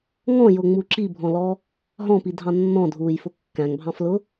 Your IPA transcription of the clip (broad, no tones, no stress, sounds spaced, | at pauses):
ŋ ɔ̃ j ʊ ŋ͡m u ǁ i bʱ ɔ̃ l ɔ | ɦ ɔ̃ p i dʱ ɑ̃ nː ɔ̃ dʱ uː j f ʊ kː æ̃ ŋ bʱ ɑ̃ f l ʊ